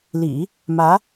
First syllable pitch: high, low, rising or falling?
low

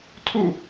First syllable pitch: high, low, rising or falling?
falling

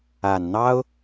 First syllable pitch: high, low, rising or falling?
low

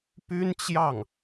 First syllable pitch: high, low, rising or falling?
high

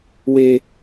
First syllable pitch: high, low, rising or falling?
low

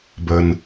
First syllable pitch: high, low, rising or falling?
low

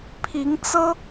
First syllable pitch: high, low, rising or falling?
rising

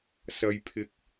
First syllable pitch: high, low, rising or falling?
low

